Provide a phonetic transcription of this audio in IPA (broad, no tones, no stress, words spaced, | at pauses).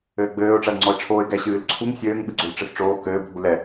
ɘːɡ͡bɘːʊ̯ ʈ͡ʂɐlŋ͡ǀɔɪ̯ʈ͡ʂʰoːɪ̯ɡɛ ɕɨːlǀʰuŋ sʲɘːŋ ɓɨɡ͡ǀolʈ͡ʂɘsʈ͡ʂoː kɘː bʱulɛ